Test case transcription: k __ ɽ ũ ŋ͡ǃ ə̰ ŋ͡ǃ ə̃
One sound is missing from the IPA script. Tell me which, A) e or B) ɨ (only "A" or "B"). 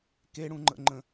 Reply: A